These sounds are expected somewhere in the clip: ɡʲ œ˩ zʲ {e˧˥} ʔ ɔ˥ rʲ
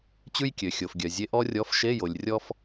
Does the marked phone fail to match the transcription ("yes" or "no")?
no